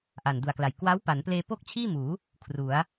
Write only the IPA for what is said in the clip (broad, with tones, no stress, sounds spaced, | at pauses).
ʔ a˨˩ n d u˨˩ a̯ k l a˨˩ j k w a˦˥ w p a˩˦ n p l eː˧ p o˥˩ k̚ t͡ɕʰ iː˥˩ m uː˩˦ | kʰ r u˩˦ a̯